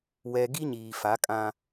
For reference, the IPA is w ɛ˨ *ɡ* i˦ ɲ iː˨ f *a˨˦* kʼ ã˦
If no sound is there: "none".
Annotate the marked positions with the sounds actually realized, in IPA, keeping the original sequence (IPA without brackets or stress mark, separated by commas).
ɡ, a˨˦